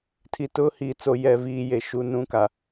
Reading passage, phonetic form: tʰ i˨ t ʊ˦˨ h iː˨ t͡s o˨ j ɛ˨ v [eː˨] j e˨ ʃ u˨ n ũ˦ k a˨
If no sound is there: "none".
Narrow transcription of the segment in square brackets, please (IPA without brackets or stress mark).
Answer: iː˨